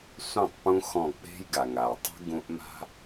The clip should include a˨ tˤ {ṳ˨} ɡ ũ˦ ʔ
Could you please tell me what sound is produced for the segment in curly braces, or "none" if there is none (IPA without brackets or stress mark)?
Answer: ṳ˦